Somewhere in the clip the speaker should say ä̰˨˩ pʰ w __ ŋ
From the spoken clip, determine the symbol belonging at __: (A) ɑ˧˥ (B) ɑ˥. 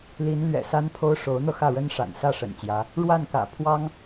B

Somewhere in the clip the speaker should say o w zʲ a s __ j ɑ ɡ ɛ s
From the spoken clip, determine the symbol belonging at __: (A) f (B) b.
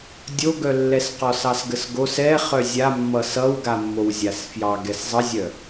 A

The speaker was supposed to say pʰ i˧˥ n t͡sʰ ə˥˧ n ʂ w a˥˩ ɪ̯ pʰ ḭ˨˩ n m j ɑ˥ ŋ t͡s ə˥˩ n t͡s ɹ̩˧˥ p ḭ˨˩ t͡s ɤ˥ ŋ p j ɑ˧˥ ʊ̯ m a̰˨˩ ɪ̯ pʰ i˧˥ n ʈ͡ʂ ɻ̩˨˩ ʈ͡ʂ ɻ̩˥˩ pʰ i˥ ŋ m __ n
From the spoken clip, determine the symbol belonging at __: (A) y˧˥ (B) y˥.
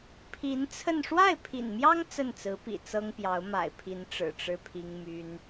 B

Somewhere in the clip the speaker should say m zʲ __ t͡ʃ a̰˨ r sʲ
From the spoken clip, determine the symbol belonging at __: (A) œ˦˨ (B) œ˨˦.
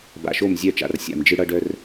A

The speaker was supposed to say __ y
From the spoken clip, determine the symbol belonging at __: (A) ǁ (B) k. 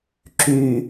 A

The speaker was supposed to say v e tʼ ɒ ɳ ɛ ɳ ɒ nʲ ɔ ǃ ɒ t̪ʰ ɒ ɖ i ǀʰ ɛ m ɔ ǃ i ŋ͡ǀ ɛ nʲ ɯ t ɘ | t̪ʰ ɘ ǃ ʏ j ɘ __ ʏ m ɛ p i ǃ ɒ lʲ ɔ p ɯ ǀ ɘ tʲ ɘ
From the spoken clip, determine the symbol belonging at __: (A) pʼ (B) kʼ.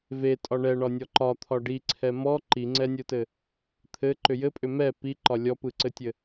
A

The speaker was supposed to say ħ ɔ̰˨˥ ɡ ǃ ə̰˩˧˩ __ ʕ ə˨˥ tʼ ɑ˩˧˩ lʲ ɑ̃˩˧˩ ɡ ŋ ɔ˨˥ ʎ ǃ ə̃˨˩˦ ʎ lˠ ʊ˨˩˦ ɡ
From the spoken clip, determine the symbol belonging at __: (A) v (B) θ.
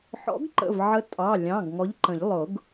A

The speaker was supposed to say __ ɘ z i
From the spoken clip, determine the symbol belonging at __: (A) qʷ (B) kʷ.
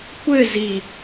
B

